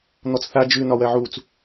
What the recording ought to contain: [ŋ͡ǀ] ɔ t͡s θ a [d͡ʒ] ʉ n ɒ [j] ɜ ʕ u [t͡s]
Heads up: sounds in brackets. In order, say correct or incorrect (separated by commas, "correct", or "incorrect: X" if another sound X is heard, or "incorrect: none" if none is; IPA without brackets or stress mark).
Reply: incorrect: n̪, correct, incorrect: w, correct